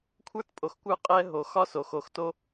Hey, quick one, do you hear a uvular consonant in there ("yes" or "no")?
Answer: yes